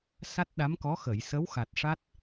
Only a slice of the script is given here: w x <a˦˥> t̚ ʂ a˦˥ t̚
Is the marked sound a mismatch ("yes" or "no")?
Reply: yes